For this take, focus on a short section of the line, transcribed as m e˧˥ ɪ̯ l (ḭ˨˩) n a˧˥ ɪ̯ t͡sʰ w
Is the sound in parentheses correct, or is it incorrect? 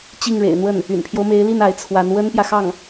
incorrect